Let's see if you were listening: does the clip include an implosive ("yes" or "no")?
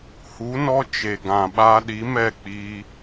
yes